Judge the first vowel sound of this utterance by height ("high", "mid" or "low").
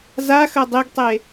low